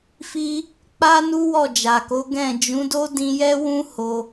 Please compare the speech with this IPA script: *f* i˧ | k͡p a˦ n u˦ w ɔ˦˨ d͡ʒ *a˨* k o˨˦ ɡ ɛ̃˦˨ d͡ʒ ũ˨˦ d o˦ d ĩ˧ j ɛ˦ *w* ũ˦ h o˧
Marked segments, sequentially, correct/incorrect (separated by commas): correct, correct, correct